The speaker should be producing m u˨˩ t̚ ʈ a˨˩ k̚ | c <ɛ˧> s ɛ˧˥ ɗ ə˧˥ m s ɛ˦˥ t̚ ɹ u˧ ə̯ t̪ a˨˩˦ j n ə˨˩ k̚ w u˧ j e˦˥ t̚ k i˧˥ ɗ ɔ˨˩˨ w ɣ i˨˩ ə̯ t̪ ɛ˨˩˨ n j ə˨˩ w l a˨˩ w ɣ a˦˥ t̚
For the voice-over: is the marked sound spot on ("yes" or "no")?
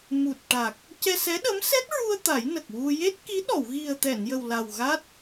yes